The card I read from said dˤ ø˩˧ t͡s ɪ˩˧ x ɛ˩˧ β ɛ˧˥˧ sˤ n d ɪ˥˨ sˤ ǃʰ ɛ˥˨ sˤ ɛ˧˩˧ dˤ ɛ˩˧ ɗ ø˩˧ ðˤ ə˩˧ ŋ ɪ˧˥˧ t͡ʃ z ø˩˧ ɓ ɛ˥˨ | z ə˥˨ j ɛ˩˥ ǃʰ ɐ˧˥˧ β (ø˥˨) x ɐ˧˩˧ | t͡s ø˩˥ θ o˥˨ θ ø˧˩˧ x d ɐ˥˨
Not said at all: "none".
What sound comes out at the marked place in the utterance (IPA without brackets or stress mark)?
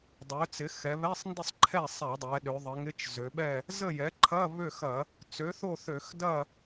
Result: ø˥˨